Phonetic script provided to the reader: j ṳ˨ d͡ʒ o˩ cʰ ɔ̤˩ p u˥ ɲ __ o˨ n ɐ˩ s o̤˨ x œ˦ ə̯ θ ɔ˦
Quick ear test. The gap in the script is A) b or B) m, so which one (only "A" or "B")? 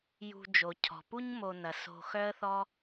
B